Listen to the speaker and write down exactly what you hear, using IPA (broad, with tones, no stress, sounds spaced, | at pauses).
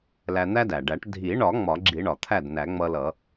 l æ˧ n̪ æ˥ d æ˩ ɖ æ˨˩˦ ʈ dʱ i˨˩˦ ɳ ɒ˨˩˦ ŋ͡m ɒ˨˩˦ ɡ͡ǁ i˨˩˦ ɳ ɒ˩ t̪ʰ æ˥˩ d n æ˨˩˦ ŋ͡m ʌ˧ l ʌ˨˩˦